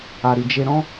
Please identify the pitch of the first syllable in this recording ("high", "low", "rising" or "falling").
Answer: low